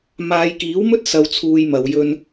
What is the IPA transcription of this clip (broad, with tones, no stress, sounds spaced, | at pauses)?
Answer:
m aː˨˧ j k iː˨˥ w m ɵ˥ t̚ s ɐ˧ w t͡sʰ uː˧ j m ɐ˨˧ w j ɵ˧ n